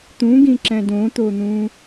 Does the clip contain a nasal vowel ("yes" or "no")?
yes